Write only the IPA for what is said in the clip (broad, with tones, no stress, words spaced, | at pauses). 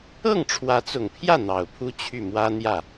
ɤ˥˩ŋʈ͡ʂʰwä˧˥t͡sʊ˨˩ŋpʰjä˥˩ n̪ɑ˨˩ʊ̯pʰu˥ t͡ɕʰy˥˩mwä˥n̪jä˥˩